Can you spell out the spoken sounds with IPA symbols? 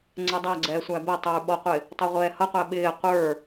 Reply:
ŋ͡ǀ ɛ dˤ æ ɡ͡ǀ ɛː sʷ æ b ɛ tˤ ə˞ ɓ ɔ qʷ ɪ | tˤ ʌ ʁʷ ɛː h ʌ qʷ æ ɓ ɪː qʷ ə˞

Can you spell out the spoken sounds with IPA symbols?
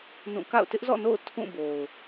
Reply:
n ũ˦˨ k a̰˦˨ ʊ̯ t ɪ˦ ʔ z ɔ̰˦˨ n o̰˦˨ ʊ̯ tʰ ũ˦˨ b o˨ ʊ̯

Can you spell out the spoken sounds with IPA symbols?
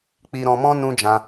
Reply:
k͡p i˧ ɾ ɔ̃˧ m ɔ̃˦ n ũ˦ d͡ʒ ã˧

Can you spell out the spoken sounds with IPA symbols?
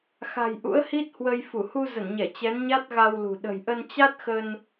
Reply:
x a̤˨˩ j ʔ ṵ˧˥ ə̯ h i˦˥ t̚ h w ə˧ j f u˧˩ h u˧ z ə˧˩ n ɲ ɛ˧˩ t͡ɕ ɛ˨˦ n ɲ a˦˥ t̚ ɣ a˧ w l ṳ˨˩ ɗ ə̤˨˩ j ʔ ə˧ n t͡ɕ a˦˥ t̚ x ə˧ n

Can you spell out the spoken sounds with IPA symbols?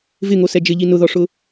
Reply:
v ɪ ŋ o s ɛ d͡ʒ ɪ ʎ i n ʊ ð ɔ ʂ ʊ

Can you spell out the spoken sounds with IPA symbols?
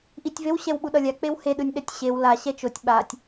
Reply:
ʔ i tʲ v e w ɕ ɛ w ɓ u ɗ ʌ lʲ a k͡p e w h e ɗ ɯ nʲ ɗ ɛ tʲ ɕ e w l a ɕ ɛ t͡ʃ o tʲ ɓ a tʲ

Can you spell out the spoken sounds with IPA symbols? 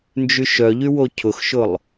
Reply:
n d͡ʒ y ʃ œ ʎ y w o cʰ ʊ x ʃ ʊ lˠ

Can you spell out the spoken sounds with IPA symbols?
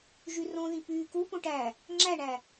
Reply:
ʒ y r õ ð ĩ p yː k u p õ ʈ æ | ŋ͡ǁ æ ɳ æ

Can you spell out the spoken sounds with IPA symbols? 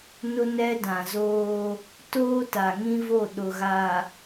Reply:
n ʊ˦ n ɛ˦ d ã˨ z oː˦ | t oː˦ t a˨ ŋ ĩ˦ v o˦˨ ɗ ʊ˨ ɣ a˨

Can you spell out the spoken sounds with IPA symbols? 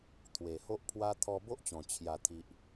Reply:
t̪ʰ w e˨˩ h o˦ ʔ pʰ w a˦ t̪ʰ ɔ˧ b o˦ ʔ t͡ɕ ɔ̃˨˩ t͡ɕʰ j a˨˩ t̪ʰ i˨ ʔ

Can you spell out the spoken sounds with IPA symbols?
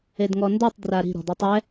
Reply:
e d ŋ ɔ n d o tˤ d r a ɾ i̤ ɾ ɔ̤ d i tˤ ɛ

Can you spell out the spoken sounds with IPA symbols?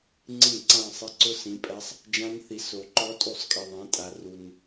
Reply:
ŋ͡ǀ ĩ˥˩ ǀ ã˥˧ sˤ ɪ˦˥ ǀ ʊ˦˥ s ĩ˨˦ pʼ ɛ˦˥ sˤ | d͡ʒ ã˦˥ n θ i˨˦ s o˨ ǃ ɔ˦˥ tʼ u˥˩ sˤ kʼ i˨ ðˤ ẽ˨˦ tʼ a˨ r u˨ n

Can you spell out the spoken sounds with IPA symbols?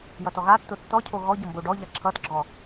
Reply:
j ʌ t ɔ ɣ a tː o tː ɔ cʰ o ɣ ɔ ɟ ʌ m b o ɖ ɔ ʎ a ǁʰ ʌ t ɡ͡ǁ ɔ

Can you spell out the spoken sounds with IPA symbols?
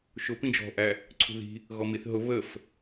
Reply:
ʃ ʊ p ĩ d͡ʒ ɔ̤ ʔ æ | ǀʰ ṳ ð i̤ | ɣ ɔ m i θ ɦ ʊ β ə f

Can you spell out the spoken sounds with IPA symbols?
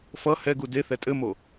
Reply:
f ʌ h ɛ ɡ u d e θ ɛ tʼ ɘ m o

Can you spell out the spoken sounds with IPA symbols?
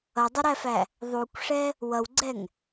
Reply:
ʌ dˤ ʊ ɾ æ f æ | ðˤ u kʷ ʂ ɛ | w ʌ w ɡ͡ǀ ɛ ŋ

